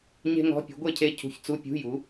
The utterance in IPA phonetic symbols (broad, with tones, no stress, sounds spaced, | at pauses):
ɲ e̤˥ ŋ ɔ̤˧˥˧ pʲ ṳ˨˥ ɡʷ e˥ cʰ e˧˥˧ cʰ ṳ˨˥ ç t͡s u˧˥˧ pʲ ṳ˧˥˧ j u˨˥